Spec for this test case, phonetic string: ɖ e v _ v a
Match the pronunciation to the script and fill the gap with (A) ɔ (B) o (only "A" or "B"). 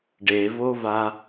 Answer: B